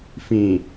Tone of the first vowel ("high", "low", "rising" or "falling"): low